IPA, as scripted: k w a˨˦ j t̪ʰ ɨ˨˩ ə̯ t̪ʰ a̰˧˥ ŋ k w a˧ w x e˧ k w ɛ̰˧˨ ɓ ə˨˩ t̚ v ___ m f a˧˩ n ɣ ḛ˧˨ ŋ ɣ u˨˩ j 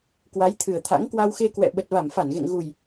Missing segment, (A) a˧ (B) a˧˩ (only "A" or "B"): B